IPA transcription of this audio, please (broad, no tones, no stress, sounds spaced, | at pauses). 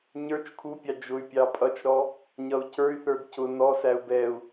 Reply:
ɲ ə˞ t͡ʃ kʰ u pʲ ɑ d͡ʒ ʊ y̯ pʲ ɑ pʼ ʌ t͡ʃ ɾ ɔ | ɲ ʌ u̯ c ə˞ y̯ θ ə˞ d c ʊ n ɔ s æ u̯ b ɛ u̯